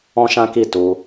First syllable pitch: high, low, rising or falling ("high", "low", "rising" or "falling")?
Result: high